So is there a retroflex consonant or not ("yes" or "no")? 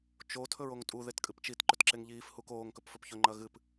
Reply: no